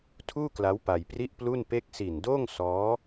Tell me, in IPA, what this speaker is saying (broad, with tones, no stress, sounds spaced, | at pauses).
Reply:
tʰ uː˥˩ k l a˦˥ w p a˧ j p r i˥˩ ʔ p l u˥˩ n p e˥˩ k̚ s i˨˩ n d oː˥˩ ŋ s ɔː˦˥